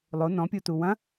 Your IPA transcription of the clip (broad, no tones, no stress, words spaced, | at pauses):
lˠo nɔ̃pʲutu wɐ̃